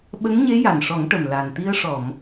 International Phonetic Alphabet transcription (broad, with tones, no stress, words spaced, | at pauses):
ɓə˧˥ŋɲe˧˥ ja˨˩nʂɔ˨˩˦ŋ ʈə˨˩mla˨˩n t̪i˧ə̯ʂɔ˨˩˨m